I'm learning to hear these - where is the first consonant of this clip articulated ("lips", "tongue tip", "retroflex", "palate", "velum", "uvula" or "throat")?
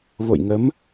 lips